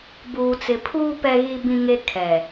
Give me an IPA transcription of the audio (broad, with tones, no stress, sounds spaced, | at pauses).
b uː˨ t͡s ɪ˨ pʰ uː˦ p ɛ˦ ɣ i˦ b ĩ˦ ŋ e˦ kʰ ɛ˨